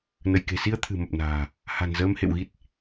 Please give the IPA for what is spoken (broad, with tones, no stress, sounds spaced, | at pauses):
n ə˧˩ j k e̤˨˩ s i˧ ə̯ t̪ʰ ɨ̤˨˩ m ə˨˩ p̚ n a̤ː˨˩ | h a̤˨˩ n z əː˧ m h ḛ˧˨ w ɣ i˦˥ t̚